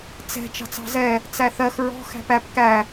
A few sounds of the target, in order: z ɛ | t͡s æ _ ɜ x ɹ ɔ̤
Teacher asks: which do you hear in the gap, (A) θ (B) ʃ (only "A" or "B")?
A